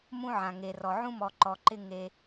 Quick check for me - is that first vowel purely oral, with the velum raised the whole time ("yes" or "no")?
no